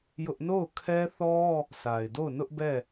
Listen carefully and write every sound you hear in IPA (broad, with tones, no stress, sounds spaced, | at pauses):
j ʊ˦ ʔ n o˦˨ ʊ̯ kʰ ɛ˦ θ ɔ˦ | sʰ a˨ ɪ̯ d o˦˨ ʊ̯ n ʊ˦ ʔ b ɛ˦˨